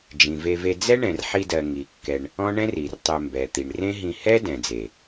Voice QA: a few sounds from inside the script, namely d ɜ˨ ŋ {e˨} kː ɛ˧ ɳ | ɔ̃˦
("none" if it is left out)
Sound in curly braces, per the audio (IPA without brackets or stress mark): i˨